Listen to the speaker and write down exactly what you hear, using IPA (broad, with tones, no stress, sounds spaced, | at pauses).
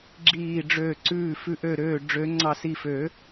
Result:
ɡ͡ǁ iː˧˩ ɖ͡ʐ ø˧˩ ǀ ʉː˧˩ f ʉ˧˩ ʔ ø˧˩ ɾ øː˧˩ ɖ͡ʐ ø˨˩˦ ŋ͡ǀ ɑ˧˩ s i˧˩ f ø˨˩˦